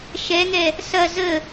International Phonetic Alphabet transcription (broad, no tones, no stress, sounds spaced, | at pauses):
ʃ ɛ ŋ ɛ | s ɐ z ə